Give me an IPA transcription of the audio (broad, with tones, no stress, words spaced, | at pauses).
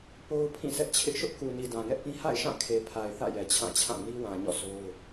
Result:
po˦ʊ̯ pʰĩ˦˨sʰɛ˦ʔt͡ɕʰɪ˦ʔ ʃʊ˦ʔku˨ni˨ dã˨ŋɛ˦ʔpĩ˦ ha̰˦˨ɪ̯ʃã˦˨kʰe˨ pʰa˨ɪ̯ θä̰˦˨jɛ˨ t͡ɕʰã˦˨t͡ɕʰã˦˨ ni˦wã˨ ɲɔ̰˦˨so˦ʊ̯